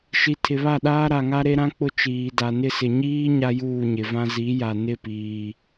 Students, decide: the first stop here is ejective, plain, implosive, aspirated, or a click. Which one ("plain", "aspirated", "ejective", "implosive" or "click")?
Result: aspirated